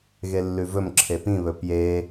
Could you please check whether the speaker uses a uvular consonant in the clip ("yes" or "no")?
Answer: no